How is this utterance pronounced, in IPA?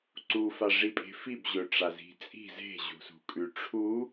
ǀufaʐipʼe̤ fibʑɵ ʈ͡ʂazi̤t͡sʼi̤ ze̤ʑṳsṳ kʼʉʈ͡ʂʰu

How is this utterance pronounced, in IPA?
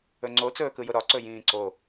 ɵŋ͡ǀo t͡sɵːkɯjʊɾɒ ǀɵjĩːǀo

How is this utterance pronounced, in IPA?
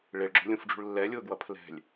ɭeɭɡ͡ǁo̤lʲũfɖ͡ʐṳɭ lːɛlʲʊːɡwʌ pʰlɛ̤lʲ

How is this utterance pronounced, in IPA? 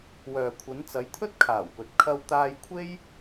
wœː˨kʷʰɐ˨˧n t͡sɐ˨˧jt̪ʰɵ˥t̚kʰaː˨˩wpɵ˨t̚ kʰɐ˧wt̪aː˧jkʷʰe˥j

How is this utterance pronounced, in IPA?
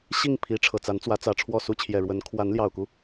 ɕi˥˩ŋ pʰi˧˥ʈ͡ʂʰɤ˨˩t͡sa˧˥nt͡swä˧˥ t͡sä˨˩ʈ͡ʂʰwɔ˥˩su˥ t͡ɕʰjɛ˨˩ɻwə˧˥n kʰwa˧˥nljɑ˨˩ʊ̯ku˦

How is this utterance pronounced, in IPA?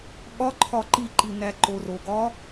ɠɒ ǃʰɒǃiǃi næǃoroɡɒ

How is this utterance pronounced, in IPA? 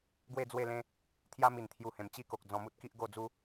ɡwe˥˧d͡zwe˥˧lẽ˦ | t̪ʰja˦mi˨˩nt̪ʰju˧hẽ˨˩m t͡ɕi˥˧ko˨k̚ d͡zɔ̃˧mu˦t̚ki˦ʔ ɡo˥˧d͡zu˦

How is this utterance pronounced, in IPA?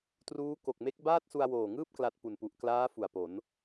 truː˦˥ ko˨˩k̚me˦˥k̚ baː˥˩t̚su˧a̯woː˨˩ŋɯː˥˩p̚ kla˦˥t̚ pu˨˩npu˨˩ʔ klaː˦˥ fu˨˩a̯po˩˦n

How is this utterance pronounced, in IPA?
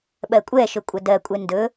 ɓɜkʷʼɛ ʃɵkʷʼɐdɜ kʷʼɛndɵ

